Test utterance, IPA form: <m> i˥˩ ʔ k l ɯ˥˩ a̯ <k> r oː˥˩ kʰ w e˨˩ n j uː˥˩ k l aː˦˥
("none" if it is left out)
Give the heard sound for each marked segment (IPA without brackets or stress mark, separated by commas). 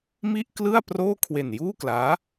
m, p